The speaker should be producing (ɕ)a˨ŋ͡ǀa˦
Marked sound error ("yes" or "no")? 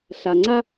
yes